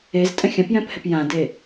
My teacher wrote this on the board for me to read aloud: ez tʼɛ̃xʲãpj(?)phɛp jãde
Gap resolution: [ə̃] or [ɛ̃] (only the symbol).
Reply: ɛ̃